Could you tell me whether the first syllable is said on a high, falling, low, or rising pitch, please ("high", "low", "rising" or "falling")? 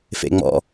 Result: low